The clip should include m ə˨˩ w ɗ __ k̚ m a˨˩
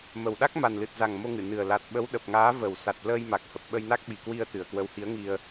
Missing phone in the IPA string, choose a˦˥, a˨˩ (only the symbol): a˦˥